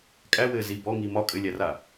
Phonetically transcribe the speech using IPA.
kʼ æ w ɘː z i b ɔ ŋ i m ɒ kʼ ɘ lʲ æ r a

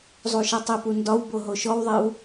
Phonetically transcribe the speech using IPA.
zˤ u ʃ ɛ tˤ i p u n d ɒ w b o ɦ o ʃ ɔ w ðˤ e w

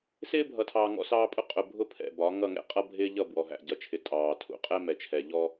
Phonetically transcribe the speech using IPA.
s ɪː˦ bʱ ʌ˨ tʰ ɑː˨ ŋ ɔ̰˦ s ɑː˦ pʼ ʊ˦ qʼ ʊ˨ bʱ ʊ˦ pʰ ɛ̰˨ b ɒ˨˦ ŋ ʌ˦˨ ŋ ɛ̰˦ qʼ ʌ˦ bʱ ɪː˦ ʎ ʌ˦˨ b w ɔ˨ ɦ æ̰˨ ɟ ʌ˨ t͡ʃʰ ɪ˨ tʼ ɑː˨ tʰ ṵ˨ qʼ ɛ˦ m ɛ˨ t͡ʃʰ ɛ˨ ʎ ɔ˦

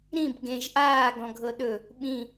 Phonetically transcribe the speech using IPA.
ɾ ĩ b ɡ ẽ ʒ ʔ aː ɡ ɔ̃ ɡʱ ɤ ɗ ɵ | ɓ ĩ

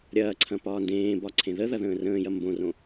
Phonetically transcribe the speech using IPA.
ɾʲ ɐː ǀʰ ɐ̃ p ɒː n d ẽː b ɒ ǀʰ ẽ ð ə ð ɐ ð ə̃ː r ə̃ː j ɐ m b õ r õ

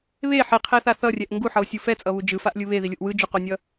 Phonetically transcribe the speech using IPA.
β e ħ i qʰ e θ a θ ʌ rʲ ɛ ʔ ŋ ɡ u ħ ʌ o̯ sʲ u f ɛ t͡sʼ ʌ β u d͡ʒ ɯ f a ʔ lʲ ɯ β e ð i lʲ u ʔ w ɯ d͡ʒ u q o nʲ ʌ

